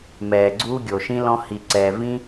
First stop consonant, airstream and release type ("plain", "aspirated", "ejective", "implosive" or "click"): click